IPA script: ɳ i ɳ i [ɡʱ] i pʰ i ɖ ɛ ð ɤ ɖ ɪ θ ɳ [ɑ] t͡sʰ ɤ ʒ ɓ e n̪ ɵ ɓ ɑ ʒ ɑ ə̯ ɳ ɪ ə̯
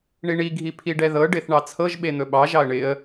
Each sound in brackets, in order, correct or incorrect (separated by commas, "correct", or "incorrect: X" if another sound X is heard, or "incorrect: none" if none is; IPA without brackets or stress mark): correct, correct